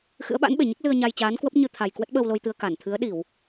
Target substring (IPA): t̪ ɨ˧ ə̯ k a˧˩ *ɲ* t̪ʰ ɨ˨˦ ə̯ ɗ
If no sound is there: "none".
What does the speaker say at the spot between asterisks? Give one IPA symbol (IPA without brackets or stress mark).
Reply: n